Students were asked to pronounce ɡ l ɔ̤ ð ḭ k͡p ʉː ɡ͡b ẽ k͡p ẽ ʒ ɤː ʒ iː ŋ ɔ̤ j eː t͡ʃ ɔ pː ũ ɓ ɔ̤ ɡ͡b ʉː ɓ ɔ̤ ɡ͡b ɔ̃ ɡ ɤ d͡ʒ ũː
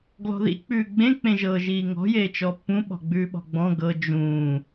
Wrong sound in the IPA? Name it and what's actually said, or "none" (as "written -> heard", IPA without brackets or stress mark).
none